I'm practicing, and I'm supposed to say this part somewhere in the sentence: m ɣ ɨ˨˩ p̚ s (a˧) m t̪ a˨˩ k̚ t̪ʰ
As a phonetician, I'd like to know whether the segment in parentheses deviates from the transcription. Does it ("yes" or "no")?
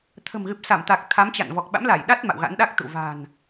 yes